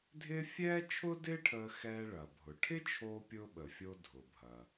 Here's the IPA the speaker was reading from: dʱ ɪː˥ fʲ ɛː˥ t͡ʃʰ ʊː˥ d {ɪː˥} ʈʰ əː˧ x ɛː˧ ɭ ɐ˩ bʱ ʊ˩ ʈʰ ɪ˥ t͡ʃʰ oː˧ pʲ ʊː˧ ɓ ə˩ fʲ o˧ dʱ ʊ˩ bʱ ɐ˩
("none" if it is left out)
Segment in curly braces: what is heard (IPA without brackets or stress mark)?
ɪː˥